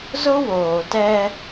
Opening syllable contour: high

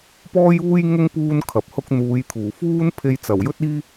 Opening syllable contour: high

